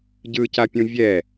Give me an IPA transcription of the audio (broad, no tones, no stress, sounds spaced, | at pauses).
ɟ ɯ c a pʲ ũ vʲ ɛ